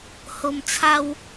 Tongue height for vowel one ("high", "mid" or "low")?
mid